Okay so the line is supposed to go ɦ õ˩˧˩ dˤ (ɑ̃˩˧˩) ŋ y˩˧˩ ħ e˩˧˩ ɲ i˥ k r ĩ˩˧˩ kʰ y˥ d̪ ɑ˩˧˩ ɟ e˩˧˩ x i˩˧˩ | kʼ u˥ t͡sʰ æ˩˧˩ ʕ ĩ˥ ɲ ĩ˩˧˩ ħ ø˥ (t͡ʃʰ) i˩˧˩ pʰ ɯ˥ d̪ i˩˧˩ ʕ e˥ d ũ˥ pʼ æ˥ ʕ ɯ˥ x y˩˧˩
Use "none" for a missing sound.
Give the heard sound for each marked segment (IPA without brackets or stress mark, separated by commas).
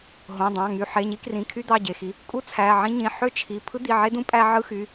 ɑ̃˩˧˩, t͡ʃʰ